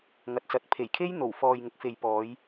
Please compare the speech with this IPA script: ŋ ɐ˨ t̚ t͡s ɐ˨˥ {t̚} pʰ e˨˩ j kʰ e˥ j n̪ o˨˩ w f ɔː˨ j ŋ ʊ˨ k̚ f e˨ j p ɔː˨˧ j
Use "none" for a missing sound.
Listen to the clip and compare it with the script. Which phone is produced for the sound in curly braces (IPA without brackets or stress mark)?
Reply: t̚